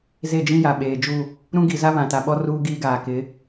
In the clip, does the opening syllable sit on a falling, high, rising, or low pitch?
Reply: falling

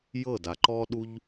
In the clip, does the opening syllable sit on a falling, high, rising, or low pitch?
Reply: falling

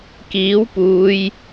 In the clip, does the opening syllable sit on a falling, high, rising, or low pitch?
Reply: rising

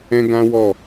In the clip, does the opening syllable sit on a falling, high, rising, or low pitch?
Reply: high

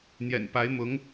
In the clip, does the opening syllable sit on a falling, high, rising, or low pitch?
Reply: low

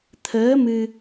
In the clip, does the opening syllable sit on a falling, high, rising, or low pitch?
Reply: rising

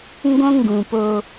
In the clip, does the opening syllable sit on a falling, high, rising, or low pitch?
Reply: high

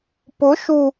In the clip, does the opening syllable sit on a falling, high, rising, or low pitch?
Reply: rising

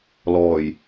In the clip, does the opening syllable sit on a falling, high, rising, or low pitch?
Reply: low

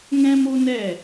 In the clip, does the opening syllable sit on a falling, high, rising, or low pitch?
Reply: high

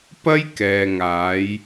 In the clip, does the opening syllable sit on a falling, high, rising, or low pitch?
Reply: high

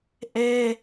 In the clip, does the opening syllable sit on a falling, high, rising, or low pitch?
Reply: high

